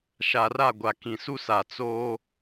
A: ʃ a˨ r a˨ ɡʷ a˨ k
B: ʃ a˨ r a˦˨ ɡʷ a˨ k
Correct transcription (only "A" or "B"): B